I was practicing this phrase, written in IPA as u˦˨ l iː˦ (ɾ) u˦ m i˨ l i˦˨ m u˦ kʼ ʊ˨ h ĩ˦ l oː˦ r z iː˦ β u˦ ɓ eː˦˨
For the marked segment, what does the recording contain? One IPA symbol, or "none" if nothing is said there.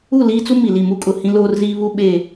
t͡s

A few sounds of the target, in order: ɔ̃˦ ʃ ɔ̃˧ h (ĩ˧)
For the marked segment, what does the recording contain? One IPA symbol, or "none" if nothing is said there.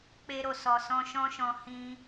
ĩ˧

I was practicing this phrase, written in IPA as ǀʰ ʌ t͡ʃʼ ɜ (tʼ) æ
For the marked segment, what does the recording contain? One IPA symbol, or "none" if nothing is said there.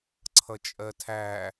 tʰ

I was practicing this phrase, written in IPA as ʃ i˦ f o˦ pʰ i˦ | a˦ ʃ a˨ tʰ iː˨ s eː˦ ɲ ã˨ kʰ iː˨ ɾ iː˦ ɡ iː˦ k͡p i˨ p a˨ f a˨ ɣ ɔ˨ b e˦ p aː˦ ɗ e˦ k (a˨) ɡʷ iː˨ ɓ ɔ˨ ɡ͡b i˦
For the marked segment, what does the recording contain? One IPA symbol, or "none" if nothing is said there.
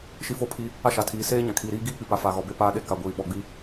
a˨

